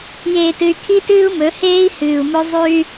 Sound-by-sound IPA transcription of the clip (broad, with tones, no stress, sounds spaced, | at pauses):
j eː˨ t ɨ˨ y̯ kʰ i˦ t ɨː˦ u̯ m ɵ˨˦ h eː˦ i̯ h ɨː˨ u̯ m ɵ˦ zˤ ʉ˦ y̯